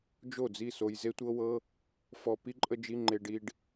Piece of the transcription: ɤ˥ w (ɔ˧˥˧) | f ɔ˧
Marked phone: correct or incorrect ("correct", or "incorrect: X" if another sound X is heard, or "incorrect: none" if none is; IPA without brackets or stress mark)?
incorrect: ɤ˧˥˧